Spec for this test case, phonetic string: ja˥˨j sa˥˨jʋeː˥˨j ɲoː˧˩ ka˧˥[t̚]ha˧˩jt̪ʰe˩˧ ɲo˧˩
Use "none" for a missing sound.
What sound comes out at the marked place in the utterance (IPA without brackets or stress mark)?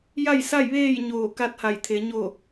t̚